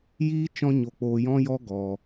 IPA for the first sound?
j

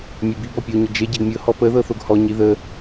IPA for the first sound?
mʲ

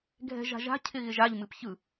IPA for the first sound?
ɡʱ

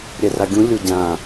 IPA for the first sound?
ɾʲ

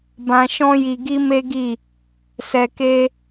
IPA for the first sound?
b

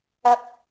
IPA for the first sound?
ɐ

